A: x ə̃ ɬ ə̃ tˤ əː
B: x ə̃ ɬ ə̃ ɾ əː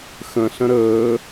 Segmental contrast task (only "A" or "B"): B